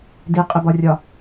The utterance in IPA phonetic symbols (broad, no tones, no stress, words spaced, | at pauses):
diqʼɪbɒrʲɒ